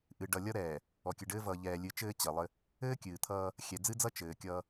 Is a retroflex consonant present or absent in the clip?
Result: present